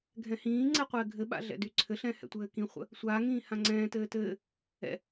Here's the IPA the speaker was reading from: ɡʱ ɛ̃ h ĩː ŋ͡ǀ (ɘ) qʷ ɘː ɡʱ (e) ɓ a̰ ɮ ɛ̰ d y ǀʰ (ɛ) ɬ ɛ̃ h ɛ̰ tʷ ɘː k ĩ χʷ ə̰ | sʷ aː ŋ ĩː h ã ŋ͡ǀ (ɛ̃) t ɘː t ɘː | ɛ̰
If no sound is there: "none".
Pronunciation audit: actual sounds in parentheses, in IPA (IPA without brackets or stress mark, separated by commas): ɛ, ɘ, ɘ, ɛ̃ː